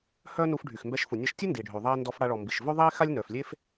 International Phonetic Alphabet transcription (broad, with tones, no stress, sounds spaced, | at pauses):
h œ˥ n u˧ f ɖʱ y˩ x m b ɛ˧ ʃ f u˩ nʲ a˧ ʃ tʲ u˥ n d iː˩ ɖʱ ø˩ ðˤ iː˧ n d ɔ˧ f ɽ a˧ ɭ ɔ˩ m b i˩ ʃ v ø˥ ðˤ iː˥ x a˥ lʲ n œ˩ f lʲ e˥ f